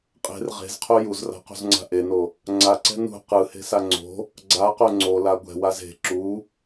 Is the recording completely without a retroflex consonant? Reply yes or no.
yes